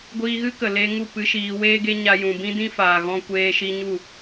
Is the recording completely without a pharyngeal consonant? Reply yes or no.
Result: yes